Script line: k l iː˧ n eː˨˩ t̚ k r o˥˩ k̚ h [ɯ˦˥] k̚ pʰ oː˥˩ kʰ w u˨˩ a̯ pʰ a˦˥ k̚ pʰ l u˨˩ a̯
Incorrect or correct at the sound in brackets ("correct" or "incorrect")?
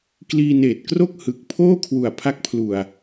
incorrect